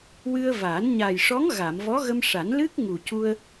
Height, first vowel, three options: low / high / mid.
high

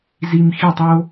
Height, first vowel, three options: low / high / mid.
high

